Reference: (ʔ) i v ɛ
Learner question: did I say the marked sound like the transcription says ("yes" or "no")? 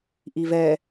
yes